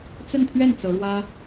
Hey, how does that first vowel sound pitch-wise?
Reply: falling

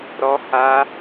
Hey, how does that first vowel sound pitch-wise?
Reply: high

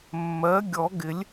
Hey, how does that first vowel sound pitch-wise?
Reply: rising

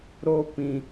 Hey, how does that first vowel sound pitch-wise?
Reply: high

